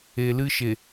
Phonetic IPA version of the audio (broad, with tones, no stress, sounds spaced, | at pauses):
e˨ l ɨ˦ ʃ e˨